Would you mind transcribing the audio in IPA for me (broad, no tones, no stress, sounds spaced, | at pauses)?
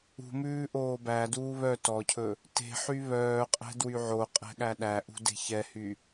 ṳ m ʉː ʔ oː b æ d uː β œ t ɔ cʰ ɵ | t e̤ ħ y β œː qʼ ɛ̤ d w y ʕ o qʼ ɛ̤ ɠ æ ɗ æ ʔ ṳ d e̤ ç ɛ h y